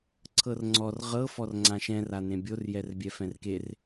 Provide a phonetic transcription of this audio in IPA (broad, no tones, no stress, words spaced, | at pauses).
ǀʰɤrŋ͡ǀɔr ʁɤ fɔrŋ͡ǀãʃɛ̃r anẽbʲor jɛrbʲɛfɛ̃rker